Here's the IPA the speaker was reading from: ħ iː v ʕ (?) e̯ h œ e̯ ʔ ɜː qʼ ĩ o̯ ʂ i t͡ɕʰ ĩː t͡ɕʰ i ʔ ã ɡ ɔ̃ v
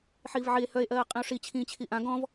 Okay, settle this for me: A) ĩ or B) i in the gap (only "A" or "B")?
B